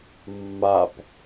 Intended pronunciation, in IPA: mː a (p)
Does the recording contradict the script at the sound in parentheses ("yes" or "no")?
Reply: no